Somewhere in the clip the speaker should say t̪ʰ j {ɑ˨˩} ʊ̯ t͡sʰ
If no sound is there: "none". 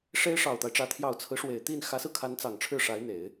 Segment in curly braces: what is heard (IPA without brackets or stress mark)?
ɑ˨˩